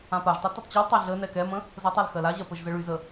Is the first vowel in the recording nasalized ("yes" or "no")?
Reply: yes